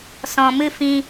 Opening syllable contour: low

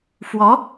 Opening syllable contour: rising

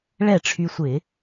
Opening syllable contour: falling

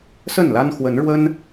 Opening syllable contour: falling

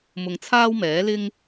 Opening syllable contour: low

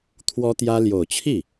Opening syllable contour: high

